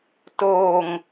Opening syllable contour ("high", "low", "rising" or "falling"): low